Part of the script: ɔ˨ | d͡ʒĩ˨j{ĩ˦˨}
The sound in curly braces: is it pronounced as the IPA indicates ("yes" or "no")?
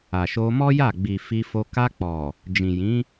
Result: no